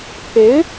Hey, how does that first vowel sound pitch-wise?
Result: rising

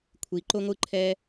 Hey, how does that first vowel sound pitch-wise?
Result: low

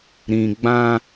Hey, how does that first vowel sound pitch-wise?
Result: low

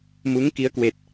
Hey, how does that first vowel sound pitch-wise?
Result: rising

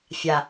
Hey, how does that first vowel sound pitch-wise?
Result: low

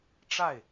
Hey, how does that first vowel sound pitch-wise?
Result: falling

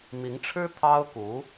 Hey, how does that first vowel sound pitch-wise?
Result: rising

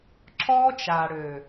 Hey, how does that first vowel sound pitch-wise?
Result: high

